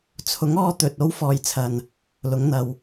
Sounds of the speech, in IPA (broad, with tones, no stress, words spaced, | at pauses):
t͡sʰʊ˨˥ŋɔː˧ t̪ɵ˨t̚ o˥w fɔː˨jt͡sʰɐ˨n | lʊ˨˥ŋn̪ɐ˨˧w